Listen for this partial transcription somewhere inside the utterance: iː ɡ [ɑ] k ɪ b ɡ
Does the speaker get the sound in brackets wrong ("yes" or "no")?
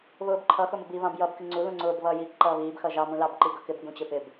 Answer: yes